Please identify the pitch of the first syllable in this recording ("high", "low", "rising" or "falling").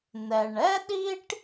low